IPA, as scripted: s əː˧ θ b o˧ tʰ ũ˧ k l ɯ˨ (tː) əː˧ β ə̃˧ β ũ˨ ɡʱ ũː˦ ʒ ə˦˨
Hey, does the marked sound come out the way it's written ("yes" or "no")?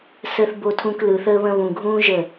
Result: no